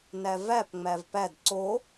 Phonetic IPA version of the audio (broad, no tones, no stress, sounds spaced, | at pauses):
n æ v æ p ŋ͡m æ v p æ d ǀ o